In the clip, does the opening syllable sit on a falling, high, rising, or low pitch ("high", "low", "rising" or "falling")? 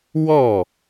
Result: falling